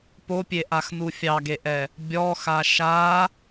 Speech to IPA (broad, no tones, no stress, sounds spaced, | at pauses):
p o pʲ e ʔ a x n u fʲ ɑ ɡ e ʔ ɛ | bʲ ɔ x a ʃ a